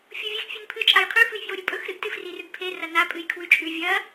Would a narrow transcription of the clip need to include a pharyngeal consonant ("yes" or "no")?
no